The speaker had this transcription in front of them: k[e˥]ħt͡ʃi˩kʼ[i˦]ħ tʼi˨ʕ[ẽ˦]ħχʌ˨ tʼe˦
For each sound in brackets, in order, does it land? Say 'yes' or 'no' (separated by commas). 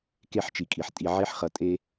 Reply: yes, no, no